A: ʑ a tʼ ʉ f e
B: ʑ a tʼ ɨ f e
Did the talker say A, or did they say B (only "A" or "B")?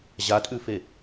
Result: A